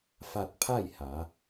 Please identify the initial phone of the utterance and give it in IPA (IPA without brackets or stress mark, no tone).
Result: f